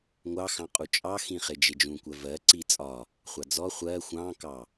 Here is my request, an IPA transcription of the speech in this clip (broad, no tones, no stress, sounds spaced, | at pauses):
ŋʷ ɑ x ɑ̃ qʼ u t͡ʃʼ ɑ x ĩ χ ɪ d͡ʒ ɪ d͡ʒ ũ kʷ ɜ v ɜ ǀ i t͡sʼ ɒ | χʷ ɑ d͡z ɔ χʷ ɜ xʷ ɑ̃ k ɑ